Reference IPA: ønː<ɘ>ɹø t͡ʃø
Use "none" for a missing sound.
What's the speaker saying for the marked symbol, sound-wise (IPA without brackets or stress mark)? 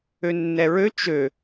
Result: ɛ